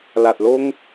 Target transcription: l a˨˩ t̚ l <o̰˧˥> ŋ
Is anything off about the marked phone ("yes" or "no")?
yes